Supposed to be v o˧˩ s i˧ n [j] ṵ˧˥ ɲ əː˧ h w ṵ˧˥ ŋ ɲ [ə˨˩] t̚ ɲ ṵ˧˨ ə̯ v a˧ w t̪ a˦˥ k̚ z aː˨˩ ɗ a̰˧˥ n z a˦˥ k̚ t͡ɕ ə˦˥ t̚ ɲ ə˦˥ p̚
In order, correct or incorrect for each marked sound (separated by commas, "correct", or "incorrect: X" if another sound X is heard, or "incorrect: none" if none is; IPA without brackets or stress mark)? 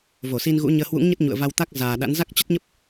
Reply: incorrect: ɣ, incorrect: ə˦˥